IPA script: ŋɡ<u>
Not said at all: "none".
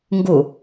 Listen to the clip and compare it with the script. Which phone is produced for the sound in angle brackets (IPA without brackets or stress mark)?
u